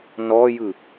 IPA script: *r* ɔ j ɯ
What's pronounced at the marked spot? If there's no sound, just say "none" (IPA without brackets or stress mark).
n